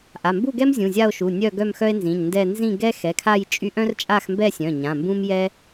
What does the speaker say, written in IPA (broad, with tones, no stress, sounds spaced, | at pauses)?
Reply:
ʔ a˩˧˩ m b u˥˧ ɡ ɛ˥ m zʲ ũ˩˧˩ zʲ a˥˧ o̯ ʃ u˩˧˩ nʲ œ˥˧ ɡ œ˥˧ m x œ˥ e̯ n z ĩ˩˧˩ ɲ n d ɛ˥˧ n z ĩ˥˧ ɡ ɛ˥ x ɛ˩˧˩ kʰ a˥˧ j t͡ʃʼ y˥ ʔ œ̃˥ r t͡ʃʼ a˥˧ x m b ɛ˥˧ sʲ œ̃˩˧˩ ɲ ã˩˧˩ m b ũ˥ m j ɛ˥